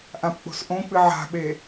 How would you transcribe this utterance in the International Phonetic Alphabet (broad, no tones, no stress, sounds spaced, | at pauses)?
ʔ ã p k͡p o̤ s ʔ õ k͡p ɨ ʕ a̤ ɓ e